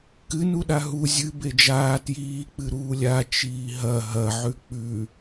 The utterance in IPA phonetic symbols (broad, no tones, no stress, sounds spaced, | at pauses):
k ɨ n u ɗ a ɦ u zʲ ɨ b e d͡ʒ aː t j iː k͡p ɨ ɾ uː lʲ a t͡ʃ iː ɦ ɐ ɦ ɐ ʕ ʉ k͡p ʉ